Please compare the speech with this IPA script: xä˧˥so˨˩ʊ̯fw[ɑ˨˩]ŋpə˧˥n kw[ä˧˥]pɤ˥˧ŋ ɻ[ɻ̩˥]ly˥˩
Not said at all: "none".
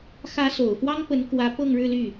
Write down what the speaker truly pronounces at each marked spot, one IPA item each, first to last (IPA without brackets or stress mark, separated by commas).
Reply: ɑ˥, ä˧˥, ɻ̩˥˧